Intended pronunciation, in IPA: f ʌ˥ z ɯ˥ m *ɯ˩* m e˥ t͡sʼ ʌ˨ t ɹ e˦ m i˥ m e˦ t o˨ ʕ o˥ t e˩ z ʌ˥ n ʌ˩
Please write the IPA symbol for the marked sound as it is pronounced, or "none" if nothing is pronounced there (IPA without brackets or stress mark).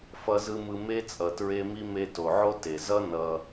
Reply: ɯ˦